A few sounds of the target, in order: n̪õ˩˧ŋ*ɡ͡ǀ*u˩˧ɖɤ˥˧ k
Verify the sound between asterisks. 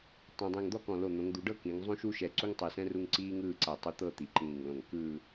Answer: incorrect: d̪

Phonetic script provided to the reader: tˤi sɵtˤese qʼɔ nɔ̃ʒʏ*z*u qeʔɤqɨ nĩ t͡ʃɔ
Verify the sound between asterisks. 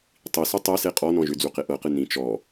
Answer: incorrect: d͡z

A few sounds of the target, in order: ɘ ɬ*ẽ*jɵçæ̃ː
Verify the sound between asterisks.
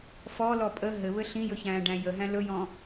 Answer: incorrect: ĩ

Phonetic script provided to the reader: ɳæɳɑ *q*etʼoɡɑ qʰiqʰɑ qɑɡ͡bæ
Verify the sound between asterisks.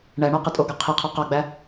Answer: correct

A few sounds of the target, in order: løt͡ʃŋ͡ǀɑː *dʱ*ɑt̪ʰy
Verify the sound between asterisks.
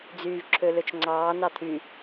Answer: incorrect: n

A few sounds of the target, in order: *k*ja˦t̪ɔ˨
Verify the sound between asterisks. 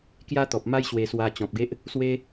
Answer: correct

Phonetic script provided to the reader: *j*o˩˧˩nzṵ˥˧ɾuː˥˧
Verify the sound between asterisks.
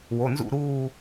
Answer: incorrect: w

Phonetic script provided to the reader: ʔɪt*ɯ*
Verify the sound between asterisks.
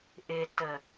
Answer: incorrect: ə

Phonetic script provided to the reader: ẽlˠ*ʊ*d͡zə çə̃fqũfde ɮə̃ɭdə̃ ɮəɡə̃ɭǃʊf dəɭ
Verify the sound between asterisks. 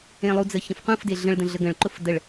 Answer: incorrect: u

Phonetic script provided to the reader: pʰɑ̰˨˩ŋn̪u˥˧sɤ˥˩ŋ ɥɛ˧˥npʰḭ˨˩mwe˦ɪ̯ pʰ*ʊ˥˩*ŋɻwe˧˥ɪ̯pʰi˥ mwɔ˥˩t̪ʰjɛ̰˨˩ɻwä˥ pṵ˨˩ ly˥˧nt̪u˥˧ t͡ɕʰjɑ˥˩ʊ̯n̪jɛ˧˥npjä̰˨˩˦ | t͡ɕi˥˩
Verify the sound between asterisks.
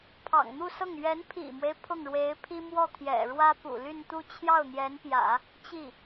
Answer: correct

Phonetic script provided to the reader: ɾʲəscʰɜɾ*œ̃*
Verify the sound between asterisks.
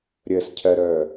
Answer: incorrect: œ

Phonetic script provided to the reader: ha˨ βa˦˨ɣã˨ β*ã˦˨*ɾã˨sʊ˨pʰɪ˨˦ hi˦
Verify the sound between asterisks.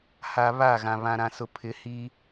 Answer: incorrect: ã˨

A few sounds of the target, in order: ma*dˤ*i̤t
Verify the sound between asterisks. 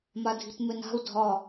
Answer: incorrect: dʱ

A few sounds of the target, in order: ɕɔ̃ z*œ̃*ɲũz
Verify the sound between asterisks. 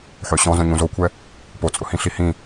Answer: correct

